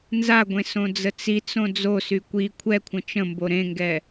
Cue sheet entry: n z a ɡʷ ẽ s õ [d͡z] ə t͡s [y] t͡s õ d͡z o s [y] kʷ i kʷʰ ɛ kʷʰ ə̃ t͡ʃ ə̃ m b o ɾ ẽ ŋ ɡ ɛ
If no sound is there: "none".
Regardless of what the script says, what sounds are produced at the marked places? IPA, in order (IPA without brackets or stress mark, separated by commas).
d͡z, i, y